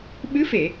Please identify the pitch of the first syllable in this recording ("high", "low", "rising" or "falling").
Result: rising